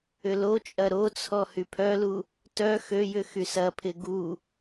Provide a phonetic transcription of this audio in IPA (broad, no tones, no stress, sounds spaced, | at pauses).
ʏ l o t͡ʃʼ ɐ ɾ o t͡sʰ ɔ h y pʰ œ l u | t œ x ø j ʏ x y s ɐ pʰ ɪ ɡ u